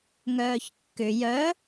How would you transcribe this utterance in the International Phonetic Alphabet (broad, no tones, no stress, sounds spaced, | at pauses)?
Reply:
ŋ œː ç kː ʏ j œ